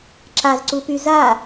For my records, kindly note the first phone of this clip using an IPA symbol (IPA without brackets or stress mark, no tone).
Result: ǁ